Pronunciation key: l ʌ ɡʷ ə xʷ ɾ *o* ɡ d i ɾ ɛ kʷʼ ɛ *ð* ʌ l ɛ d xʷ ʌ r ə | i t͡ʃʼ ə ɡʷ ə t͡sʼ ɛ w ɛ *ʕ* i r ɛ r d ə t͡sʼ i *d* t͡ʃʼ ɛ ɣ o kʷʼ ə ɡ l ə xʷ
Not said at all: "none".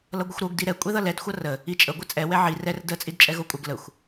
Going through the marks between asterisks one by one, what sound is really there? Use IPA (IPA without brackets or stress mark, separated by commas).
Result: o, ð, ʕ, d